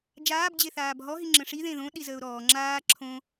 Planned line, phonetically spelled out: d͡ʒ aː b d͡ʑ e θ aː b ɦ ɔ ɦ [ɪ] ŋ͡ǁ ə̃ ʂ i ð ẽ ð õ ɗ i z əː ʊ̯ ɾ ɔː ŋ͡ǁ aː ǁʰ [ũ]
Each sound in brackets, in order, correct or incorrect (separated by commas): incorrect, incorrect